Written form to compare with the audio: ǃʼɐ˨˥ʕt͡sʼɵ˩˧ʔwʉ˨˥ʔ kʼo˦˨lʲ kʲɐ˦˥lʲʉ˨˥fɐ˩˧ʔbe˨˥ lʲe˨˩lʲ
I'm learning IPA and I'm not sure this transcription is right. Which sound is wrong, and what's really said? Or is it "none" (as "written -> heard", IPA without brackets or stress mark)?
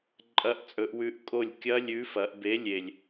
ʕ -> ʔ